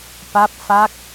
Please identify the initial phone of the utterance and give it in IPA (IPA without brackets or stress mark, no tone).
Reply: p